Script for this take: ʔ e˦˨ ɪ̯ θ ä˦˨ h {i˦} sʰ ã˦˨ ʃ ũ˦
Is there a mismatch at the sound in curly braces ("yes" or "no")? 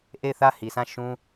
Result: yes